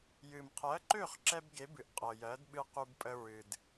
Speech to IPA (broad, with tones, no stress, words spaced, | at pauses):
jɨ˩mqʰɜ˩˥ǃø˥˩χ ǁɛ˥b ɡe˩˥bɨ˩ʔ qʼɤ˩jɜ˩˥dɓɨ˧ qu˧bpʼə˧ɹɨ˩d